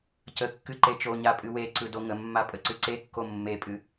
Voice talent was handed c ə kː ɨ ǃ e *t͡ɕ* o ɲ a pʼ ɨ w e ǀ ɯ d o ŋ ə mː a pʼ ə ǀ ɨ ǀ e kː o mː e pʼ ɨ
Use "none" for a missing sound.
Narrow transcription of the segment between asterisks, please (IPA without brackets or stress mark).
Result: t͡ʃ